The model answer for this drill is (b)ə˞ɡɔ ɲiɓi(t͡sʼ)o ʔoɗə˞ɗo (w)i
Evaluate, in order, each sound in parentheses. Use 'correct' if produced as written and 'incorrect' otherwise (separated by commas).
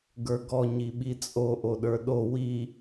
incorrect, correct, correct